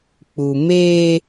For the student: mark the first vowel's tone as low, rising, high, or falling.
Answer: low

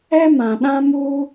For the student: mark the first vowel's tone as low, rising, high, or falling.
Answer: high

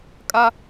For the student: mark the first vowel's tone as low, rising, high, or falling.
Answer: high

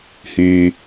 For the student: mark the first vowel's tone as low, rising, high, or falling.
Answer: low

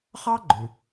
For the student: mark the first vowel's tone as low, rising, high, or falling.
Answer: high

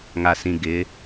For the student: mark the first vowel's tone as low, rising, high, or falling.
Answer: low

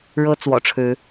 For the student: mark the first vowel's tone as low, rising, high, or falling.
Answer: high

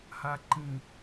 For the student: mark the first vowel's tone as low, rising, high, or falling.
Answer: low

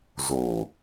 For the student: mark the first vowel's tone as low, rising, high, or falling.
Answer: low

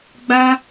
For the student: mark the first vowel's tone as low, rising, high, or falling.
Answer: high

